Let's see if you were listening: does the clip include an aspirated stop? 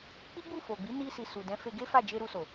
no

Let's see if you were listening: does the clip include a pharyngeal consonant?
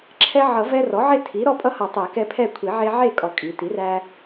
yes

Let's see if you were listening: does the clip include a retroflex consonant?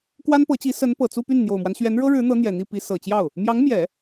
yes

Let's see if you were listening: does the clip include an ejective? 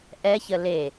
no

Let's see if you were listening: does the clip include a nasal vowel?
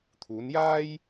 no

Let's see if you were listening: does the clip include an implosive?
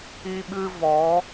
yes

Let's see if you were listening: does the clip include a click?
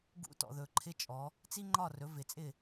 yes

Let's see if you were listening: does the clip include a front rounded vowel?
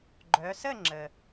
yes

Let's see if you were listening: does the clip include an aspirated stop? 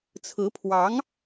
yes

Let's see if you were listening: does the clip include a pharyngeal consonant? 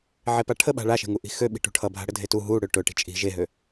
yes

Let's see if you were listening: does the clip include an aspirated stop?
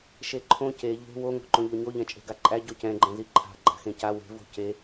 yes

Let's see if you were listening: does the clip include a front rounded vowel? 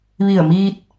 no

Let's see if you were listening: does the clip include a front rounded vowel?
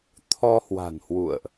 no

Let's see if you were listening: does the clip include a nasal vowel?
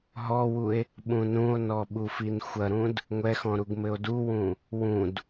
yes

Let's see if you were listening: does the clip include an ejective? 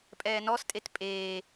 yes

